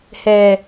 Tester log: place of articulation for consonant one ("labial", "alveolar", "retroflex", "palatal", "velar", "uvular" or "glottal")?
glottal